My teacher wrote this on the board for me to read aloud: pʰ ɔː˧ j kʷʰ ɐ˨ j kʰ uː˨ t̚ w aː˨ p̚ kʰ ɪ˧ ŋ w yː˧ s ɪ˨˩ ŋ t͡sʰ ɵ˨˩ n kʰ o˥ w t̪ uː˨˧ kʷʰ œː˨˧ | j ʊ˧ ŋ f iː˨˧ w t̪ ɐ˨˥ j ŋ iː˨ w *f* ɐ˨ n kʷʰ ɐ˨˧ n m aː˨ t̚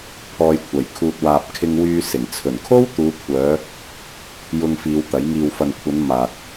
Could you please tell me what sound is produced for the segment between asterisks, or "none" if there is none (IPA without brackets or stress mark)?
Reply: f